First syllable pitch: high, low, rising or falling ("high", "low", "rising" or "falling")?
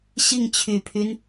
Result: falling